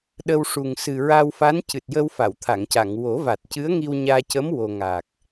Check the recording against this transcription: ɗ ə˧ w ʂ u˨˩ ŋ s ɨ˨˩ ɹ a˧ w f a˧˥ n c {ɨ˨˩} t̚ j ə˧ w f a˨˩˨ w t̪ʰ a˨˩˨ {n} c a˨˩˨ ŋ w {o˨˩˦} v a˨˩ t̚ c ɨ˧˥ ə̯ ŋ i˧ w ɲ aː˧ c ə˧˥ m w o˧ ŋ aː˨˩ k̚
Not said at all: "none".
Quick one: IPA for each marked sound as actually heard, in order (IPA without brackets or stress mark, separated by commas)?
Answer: ɨ˨˩, ŋ, o˨˩˦